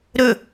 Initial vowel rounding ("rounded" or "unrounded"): rounded